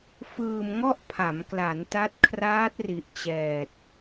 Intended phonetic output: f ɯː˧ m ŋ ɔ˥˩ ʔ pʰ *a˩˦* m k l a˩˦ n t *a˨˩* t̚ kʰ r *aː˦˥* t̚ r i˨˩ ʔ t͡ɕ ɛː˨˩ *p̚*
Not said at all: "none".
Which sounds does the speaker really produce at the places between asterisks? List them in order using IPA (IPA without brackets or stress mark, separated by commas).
a˩˦, a˦˥, aː˦˥, t̚